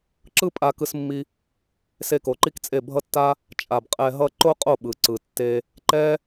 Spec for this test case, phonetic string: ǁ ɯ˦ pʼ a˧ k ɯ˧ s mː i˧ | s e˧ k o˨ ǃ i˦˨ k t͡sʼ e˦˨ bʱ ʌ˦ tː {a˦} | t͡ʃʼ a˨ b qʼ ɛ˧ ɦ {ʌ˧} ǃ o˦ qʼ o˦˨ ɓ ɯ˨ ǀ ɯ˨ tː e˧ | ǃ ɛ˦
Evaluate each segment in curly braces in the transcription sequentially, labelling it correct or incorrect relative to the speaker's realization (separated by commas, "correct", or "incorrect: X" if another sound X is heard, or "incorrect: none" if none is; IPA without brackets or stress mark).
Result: correct, incorrect: ʌ˦